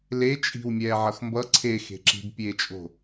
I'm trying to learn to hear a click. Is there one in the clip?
yes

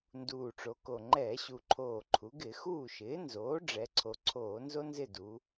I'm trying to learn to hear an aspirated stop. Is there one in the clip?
yes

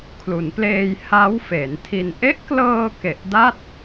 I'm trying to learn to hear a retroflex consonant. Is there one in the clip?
no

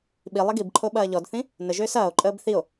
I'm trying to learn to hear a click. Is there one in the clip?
yes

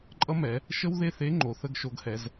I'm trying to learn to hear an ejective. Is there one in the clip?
yes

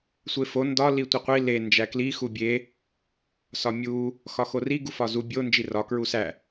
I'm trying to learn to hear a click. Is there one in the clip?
no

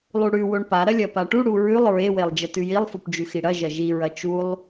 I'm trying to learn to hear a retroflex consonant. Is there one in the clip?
yes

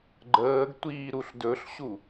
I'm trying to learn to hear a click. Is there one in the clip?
yes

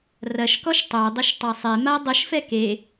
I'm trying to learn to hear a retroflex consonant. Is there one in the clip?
no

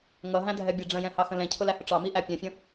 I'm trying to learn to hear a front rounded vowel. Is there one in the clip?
no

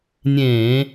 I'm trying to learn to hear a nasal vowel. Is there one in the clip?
yes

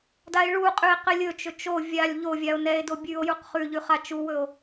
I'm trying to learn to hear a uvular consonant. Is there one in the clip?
yes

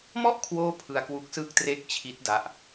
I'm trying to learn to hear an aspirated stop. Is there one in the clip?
yes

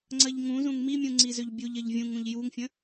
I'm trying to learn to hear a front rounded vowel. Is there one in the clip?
yes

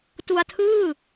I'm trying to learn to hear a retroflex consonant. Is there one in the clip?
no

